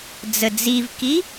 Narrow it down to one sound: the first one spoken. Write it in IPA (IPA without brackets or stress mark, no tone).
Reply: d͡z